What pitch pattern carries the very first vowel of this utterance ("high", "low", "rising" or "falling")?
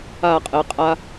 falling